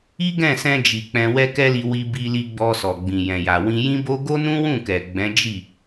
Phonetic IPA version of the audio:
i˦ ɡ ɛ̃˦˨ s ɛ̃˧ d͡ʒ i˨ k͡p ɛ̃˧ w ɛ˦ k ɛ˦ l i˧ w i˧ b i˧ l i˧ ɡ͡b ɔ˧ s ɔ˨ ɡ͡b ĩ˨ j ɛ̃˨ j a˨ w ĩ˧ j ĩ˦ b o˦ ɡ o˦ n ũ˦ w ũ˦˨ k ɛ˨ ɡ͡b ɛ̃˨˦ d͡ʒ i˦˨

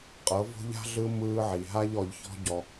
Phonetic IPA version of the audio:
qʼ ɤ˨˦ v o̤˦ ʎ a̤˦ ɮ ɯ˦ m ɯː˧ ʕ i˨ ɦ a˦ ʎ ɔ˧ ʎ ç ɔ̤˦ ɟ ɔ˧

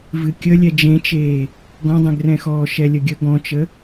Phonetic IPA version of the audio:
v ɨ kʲ ə lʲ ɛ d͡ʒ ẽ t͡ʃ eː | ɡ ɔ̃ dˤ ɛ̃ ɡ r ɛ̃ x ɔː ʃ ɛ lʲ ə ɡʲ ə ɡ ɔ̃ t͡ʃ ə

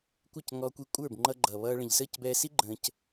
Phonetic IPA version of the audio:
kʷ ɪ˦˨ c ŋ ɔ˧ kʷ i˧ kʷʼ ə˞˦˨ b ŋ͡ǃ ʌ˧ ɡ͡ǃ ʌː˨ β ʌː˧ ɭ ə̃˨ ʎ s əː˦˨ c b ɛː˧ s i˦ ɡ͡ǃ ə̃ː˧ c

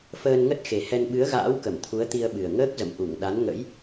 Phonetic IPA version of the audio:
f əː˧ n ŋ ə˦˥ t̚ x e˨˩ h ɛ˧ n ɓ ɨ˨˦ ə̯ ɣ a̰ː˧˥ w k ə˧˩ m t̪ʰ u˨˦ ə̯ t̪ i˧ ə̯ ɓ ɨ˨˩ ə̯ ŋ əː˦˥ k̚ z ə̰˧˨ m ʔ u˧˩ ŋ ɗ a˨˦ n ŋ ə̰˧˥ j

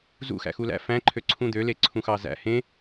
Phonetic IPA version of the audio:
z ṵ x æ̰ x u l æ̰ f æ̃ ǃʰ ø ǀʰ ũ d̪ ø l e ǀʰ ũ x ɑ z æ̰ h ẽ

